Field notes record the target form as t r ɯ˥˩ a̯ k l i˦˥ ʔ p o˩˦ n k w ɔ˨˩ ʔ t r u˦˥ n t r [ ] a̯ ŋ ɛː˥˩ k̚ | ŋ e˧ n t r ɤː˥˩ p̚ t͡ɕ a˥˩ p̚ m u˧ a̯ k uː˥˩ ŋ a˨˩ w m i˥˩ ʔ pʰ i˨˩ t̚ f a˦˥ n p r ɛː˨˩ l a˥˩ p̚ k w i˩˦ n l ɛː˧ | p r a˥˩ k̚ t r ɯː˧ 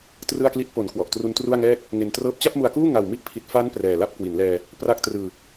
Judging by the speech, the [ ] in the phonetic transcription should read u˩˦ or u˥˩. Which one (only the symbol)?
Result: u˥˩